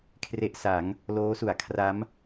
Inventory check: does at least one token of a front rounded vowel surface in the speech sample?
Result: no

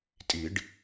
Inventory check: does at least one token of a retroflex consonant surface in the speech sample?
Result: yes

